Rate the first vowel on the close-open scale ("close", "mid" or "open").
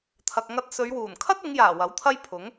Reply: open